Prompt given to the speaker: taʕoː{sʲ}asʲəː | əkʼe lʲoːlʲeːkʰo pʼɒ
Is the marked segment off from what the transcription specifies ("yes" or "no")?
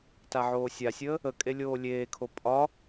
no